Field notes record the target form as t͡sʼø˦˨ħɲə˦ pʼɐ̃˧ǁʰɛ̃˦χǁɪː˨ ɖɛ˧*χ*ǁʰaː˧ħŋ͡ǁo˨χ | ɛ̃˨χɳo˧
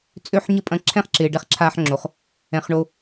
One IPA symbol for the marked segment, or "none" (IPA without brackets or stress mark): χ